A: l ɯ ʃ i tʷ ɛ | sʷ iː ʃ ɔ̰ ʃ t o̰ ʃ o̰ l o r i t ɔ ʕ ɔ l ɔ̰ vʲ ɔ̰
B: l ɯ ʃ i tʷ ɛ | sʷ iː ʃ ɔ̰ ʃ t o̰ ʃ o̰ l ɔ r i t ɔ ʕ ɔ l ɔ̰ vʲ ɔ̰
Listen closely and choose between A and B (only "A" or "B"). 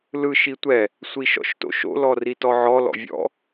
B